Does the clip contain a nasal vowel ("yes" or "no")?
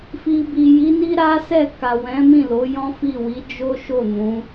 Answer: yes